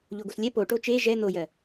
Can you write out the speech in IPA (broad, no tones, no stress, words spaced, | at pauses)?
ʎoɡoslʲɛ po ʈot͡ʃe ʒɛ n̪ojɜ